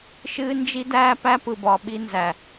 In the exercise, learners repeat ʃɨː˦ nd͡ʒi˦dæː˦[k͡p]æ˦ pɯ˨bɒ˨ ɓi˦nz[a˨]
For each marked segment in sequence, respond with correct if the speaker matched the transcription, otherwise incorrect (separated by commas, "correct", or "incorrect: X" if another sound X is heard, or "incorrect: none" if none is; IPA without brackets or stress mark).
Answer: incorrect: p, incorrect: æ˨